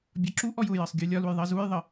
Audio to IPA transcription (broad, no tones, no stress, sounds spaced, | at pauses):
bʲ ɒ ǁ u ʔ ɔ j ʊ j ɜ sˤ ɡʲ u lʲ ɒ l u j ðˤ ɜ z u j ðˤ ə